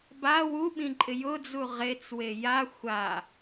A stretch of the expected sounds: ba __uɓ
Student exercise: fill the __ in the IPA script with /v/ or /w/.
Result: w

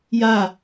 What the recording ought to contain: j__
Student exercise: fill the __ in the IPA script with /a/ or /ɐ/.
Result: a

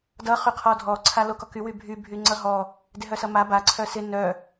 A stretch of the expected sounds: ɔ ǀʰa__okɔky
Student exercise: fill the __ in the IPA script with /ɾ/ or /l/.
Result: l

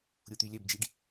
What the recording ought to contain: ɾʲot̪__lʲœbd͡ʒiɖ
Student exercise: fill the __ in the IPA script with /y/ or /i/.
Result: y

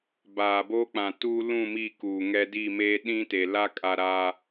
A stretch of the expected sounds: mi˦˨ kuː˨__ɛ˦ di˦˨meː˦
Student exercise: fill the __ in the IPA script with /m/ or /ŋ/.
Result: ŋ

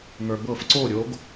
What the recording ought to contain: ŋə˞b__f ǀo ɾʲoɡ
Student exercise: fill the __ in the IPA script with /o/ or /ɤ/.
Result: ɤ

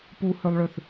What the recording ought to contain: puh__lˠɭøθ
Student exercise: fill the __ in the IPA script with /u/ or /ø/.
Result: ø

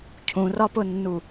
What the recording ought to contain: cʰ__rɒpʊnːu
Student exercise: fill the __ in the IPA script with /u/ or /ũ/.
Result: ũ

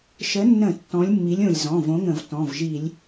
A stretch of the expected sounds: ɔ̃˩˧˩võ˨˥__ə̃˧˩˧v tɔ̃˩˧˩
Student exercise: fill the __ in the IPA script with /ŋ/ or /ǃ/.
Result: ŋ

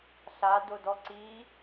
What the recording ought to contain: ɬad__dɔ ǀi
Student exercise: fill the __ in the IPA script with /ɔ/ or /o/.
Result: o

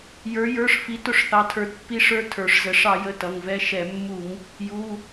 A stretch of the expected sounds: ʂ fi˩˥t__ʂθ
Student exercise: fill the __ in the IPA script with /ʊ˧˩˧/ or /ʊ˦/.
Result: ʊ˧˩˧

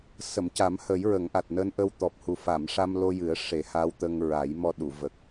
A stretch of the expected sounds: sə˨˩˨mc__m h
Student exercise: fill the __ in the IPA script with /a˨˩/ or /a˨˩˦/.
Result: a˨˩˦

